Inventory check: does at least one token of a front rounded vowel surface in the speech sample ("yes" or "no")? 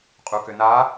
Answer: yes